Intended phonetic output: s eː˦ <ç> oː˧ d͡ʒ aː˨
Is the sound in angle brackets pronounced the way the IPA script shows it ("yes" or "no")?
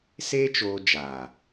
no